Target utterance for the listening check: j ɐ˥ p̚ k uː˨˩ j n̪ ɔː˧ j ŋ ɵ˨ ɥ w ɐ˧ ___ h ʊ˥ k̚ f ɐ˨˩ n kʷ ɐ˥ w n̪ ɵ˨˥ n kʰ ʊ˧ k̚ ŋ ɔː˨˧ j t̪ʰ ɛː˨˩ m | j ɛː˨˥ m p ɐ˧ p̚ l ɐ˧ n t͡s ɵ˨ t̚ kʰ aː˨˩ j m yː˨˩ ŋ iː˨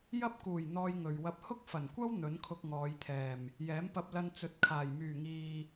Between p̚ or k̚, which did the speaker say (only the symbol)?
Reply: p̚